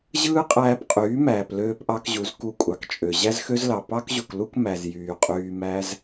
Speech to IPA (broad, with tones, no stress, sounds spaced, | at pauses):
ʑ ɯː˦ qʼ æː˧ p qʼ yː˨˦ m æː˨ p l øː˧ p ʔ ɑ˧ k ʑ u˨˦ z k u˧ kʷʼ ɑ˨ k t͡ʃʼ ø˨ ʑ æ˦ z x ø˦ z l ɑ˨ p ɑ˦ k ʑ u˨ k l u˦ k m æ˨ z j yː˨ qʼ yː˧ m æ˧ z